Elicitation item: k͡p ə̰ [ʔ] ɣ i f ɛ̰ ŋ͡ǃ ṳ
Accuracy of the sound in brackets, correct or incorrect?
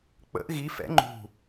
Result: correct